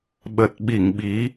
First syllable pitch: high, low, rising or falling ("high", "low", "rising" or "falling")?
low